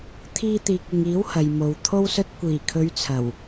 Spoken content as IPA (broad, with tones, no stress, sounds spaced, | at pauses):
t̪ʰ iː˧ t̪ iː˨ k̚ ɪ˨ ŋ iː˨˥ w h ɐ˨ j m o˨ w t̪ʰ o˥ w s ɵ˧ t̚ kʷ iː˨˩ kʰ ɵ˨˧ ɥ t͡sʰ ɐ˨˩ w